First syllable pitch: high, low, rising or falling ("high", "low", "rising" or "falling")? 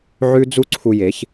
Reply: high